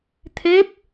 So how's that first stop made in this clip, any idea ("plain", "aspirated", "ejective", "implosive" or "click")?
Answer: aspirated